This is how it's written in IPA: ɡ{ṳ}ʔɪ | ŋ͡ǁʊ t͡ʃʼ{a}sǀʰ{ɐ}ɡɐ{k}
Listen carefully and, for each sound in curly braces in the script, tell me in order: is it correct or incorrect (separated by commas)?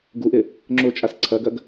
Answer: incorrect, correct, correct, incorrect